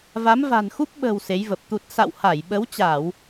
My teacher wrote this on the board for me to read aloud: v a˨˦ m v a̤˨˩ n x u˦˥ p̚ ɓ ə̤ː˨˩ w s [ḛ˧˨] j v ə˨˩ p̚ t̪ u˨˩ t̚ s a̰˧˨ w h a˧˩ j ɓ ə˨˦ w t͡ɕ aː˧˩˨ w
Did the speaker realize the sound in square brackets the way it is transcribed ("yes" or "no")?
no